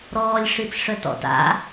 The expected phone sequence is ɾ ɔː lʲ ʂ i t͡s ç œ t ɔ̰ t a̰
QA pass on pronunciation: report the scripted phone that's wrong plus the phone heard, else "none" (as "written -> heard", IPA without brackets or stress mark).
ç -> ʂ